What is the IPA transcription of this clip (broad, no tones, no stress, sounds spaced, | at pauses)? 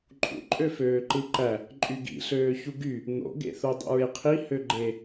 ǃʼ ṵ ǃʼ ø f øː ǃ ɯ ǃ æ | ǃʼ y ɡ ḭ ɬ øː ç u ɡ y | n̪ o̰ ɡ ḛ θ o dˤ o̰ ɹ e qʰ i h ø ɡ͡ǃ e